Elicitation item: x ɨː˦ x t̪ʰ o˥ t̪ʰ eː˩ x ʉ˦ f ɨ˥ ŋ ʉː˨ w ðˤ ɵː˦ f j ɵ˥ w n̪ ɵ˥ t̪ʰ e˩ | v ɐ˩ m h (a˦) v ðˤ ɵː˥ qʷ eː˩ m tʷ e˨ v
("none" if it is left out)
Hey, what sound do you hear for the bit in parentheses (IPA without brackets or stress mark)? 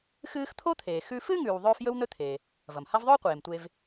a˦